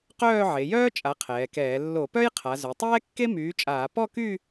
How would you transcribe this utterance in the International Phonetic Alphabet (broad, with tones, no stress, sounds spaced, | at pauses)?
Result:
q œː˥˧ ʕ e˩˧ j œː˥ t͡ʃʼ a˨˥ qʰ ɛː˩˧ k ɛː˧˩˧ lː o˧˩˧ p œ˥ j qʰ a˩˧ z ø˩˧ tˤ ɛː˥ kː e˥ m yː˨˥ t͡ʃʼ aː˧˩˧ p ɔ˥˧ k y˥˧